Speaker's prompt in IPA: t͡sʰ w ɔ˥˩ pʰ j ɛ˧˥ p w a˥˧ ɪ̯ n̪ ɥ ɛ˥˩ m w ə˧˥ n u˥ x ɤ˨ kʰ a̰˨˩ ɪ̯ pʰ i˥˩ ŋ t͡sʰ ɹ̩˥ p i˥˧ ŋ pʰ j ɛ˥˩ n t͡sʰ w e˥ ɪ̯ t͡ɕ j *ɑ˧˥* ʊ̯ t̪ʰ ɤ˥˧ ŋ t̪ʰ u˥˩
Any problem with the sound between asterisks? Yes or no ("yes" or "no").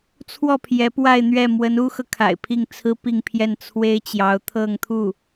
no